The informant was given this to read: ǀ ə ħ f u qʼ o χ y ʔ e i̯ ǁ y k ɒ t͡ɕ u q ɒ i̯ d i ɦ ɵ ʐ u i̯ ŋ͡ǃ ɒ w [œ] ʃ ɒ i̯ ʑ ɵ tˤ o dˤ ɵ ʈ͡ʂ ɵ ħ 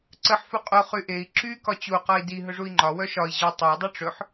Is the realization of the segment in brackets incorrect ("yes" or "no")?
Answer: no